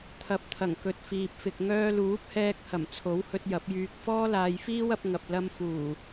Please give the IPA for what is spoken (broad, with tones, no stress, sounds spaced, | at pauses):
t̪ʰ ɐ˨˥ p̚ t̪ʰ ɐ˨˩ ŋ k ɵ˨ t̚ f iː˨ p̚ f ɪ˨ k̚ ŋ œː˧ l uː˨˥ p̚ h ɛː˧ k̚ h ɐ˨˩ m t͡sʰ o˨˥ w h ɵ˧ t̚ j ɐ˨˥ p̚ j yː˧ k̚ f ɔː˥ l aː˧ j f iː˥ w ɐ˨˥ p̚ ŋ ɐ˧ p̚ l ɐ˧ m f uː˨˩